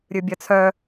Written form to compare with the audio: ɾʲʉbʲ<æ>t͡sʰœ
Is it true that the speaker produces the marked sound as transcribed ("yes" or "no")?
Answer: no